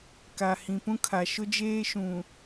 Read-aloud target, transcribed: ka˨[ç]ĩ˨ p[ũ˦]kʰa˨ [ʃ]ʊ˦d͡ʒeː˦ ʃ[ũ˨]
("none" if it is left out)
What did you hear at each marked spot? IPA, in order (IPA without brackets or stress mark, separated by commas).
h, ũ˦, ʃ, ũ˨